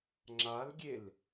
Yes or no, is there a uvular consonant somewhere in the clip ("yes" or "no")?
no